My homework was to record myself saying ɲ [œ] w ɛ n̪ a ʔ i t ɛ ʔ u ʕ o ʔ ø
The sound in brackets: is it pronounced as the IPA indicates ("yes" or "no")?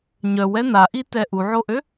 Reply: yes